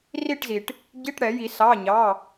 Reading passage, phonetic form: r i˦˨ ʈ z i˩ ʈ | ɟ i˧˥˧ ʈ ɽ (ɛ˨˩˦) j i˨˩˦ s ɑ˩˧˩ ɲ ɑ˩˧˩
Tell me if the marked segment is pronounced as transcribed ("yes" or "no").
yes